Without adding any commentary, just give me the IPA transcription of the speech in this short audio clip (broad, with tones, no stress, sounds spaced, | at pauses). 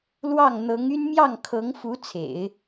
l w ɑ˥˩ ŋ n̪ ɤ˧˥ ŋ y˥ n m j ɑ˥˩ ŋ kʰ ɤ˧˥ ŋ f u˧˥ t͡sʰ ḛ˨˩˦ ɪ̯